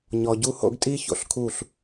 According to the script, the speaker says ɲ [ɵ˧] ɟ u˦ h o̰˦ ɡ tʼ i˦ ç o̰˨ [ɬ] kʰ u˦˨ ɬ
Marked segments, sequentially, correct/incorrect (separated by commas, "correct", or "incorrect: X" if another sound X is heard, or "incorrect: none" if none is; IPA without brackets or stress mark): incorrect: ɔ˧, correct